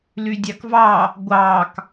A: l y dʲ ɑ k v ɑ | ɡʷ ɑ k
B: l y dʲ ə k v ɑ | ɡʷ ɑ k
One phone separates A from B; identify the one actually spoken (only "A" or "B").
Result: A